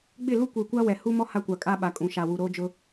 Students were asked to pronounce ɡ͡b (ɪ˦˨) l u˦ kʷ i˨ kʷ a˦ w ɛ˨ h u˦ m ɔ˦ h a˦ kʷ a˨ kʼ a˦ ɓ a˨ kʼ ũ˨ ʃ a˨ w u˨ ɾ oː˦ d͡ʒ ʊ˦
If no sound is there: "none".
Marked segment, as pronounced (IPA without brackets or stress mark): ɪ˦˨